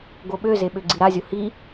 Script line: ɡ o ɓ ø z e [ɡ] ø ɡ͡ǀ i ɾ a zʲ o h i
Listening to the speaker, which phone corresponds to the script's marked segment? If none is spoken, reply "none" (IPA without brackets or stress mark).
ɓ